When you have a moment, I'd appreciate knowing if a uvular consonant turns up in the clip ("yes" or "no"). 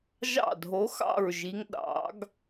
no